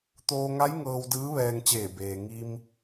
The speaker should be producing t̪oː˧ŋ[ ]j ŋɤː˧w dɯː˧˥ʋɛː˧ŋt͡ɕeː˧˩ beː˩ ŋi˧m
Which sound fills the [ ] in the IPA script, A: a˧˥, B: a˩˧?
A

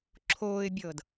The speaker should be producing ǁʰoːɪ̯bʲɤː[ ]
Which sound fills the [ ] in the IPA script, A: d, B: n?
A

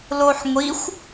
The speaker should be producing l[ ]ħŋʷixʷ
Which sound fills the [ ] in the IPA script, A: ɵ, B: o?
B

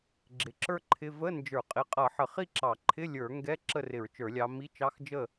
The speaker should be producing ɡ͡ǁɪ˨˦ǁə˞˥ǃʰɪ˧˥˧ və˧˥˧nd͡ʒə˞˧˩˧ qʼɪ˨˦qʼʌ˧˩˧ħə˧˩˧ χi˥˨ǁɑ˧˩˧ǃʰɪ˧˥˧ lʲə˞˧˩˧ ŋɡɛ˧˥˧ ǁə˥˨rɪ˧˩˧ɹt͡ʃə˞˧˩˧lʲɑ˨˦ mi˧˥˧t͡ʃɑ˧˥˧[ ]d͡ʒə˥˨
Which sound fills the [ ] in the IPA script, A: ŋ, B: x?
B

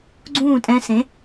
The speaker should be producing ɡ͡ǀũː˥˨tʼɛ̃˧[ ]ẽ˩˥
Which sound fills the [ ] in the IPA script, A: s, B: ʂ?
A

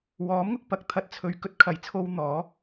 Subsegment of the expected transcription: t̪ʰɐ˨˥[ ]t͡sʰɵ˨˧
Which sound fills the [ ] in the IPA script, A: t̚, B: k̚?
A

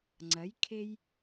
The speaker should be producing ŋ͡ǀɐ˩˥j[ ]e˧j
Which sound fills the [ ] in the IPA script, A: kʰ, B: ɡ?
A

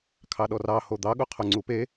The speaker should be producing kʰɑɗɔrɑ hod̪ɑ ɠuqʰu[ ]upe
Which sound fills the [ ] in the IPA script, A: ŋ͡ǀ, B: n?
A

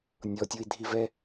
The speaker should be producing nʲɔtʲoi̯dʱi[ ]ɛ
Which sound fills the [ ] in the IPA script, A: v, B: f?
A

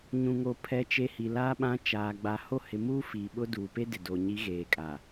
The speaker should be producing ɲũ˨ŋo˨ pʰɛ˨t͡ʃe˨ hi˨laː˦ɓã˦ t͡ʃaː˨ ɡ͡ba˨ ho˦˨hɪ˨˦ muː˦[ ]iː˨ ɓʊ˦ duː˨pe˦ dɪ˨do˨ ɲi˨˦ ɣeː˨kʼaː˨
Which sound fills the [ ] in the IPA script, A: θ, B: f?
B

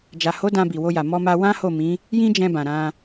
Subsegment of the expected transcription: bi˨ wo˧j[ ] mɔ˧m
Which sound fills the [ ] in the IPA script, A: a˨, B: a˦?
A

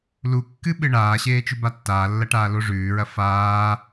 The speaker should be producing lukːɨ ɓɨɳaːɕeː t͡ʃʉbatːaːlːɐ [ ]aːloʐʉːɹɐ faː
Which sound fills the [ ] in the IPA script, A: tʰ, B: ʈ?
B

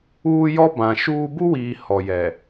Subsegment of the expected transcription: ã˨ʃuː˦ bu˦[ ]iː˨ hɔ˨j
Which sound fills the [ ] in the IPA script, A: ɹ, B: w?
B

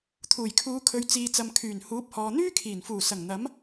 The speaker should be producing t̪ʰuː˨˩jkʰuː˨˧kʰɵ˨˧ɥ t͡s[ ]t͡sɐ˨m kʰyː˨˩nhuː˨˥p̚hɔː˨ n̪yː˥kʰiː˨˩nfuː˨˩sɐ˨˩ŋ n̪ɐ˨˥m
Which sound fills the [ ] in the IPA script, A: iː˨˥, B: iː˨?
B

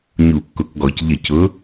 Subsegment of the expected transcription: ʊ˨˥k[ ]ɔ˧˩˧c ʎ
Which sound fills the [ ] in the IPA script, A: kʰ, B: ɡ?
B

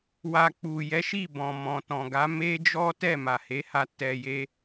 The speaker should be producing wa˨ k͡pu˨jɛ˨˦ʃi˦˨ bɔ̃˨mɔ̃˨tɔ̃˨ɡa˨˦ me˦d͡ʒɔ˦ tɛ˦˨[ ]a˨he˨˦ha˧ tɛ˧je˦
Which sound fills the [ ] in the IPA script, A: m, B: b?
A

